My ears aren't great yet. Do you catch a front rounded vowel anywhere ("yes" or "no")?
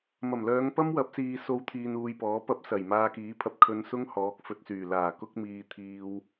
yes